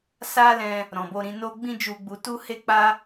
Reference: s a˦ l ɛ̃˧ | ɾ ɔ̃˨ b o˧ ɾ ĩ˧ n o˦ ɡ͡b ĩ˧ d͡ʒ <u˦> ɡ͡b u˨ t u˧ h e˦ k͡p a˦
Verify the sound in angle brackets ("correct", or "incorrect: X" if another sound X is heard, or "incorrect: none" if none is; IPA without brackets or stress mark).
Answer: incorrect: u˨